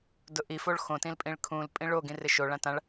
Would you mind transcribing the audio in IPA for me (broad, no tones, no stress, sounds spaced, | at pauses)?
d ʊ ʔ i f o ɭ x õ t ĩ l pʼ ĩ ɭ kʰ ũ l pʼ ĩ ɭ o ɡ ĩ r ɪ ʃ o ɭ ã t ã ɭ